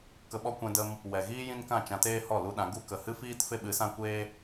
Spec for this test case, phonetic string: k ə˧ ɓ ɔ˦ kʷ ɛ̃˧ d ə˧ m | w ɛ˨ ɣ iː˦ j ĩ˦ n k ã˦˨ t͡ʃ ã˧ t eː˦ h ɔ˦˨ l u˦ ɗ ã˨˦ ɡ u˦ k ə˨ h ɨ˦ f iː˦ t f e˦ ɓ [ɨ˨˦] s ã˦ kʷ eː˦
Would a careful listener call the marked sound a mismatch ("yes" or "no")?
no